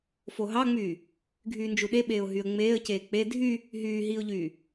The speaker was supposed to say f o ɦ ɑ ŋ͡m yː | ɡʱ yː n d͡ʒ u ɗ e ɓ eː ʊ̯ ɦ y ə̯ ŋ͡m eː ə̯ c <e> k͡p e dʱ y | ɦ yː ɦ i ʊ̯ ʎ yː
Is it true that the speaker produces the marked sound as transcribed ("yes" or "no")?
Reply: no